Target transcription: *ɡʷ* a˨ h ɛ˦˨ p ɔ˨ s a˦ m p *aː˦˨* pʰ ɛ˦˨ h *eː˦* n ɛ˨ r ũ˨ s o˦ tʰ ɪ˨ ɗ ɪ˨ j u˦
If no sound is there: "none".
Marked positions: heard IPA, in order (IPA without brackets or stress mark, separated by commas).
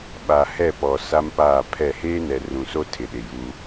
ɓ, aː˦˨, eː˦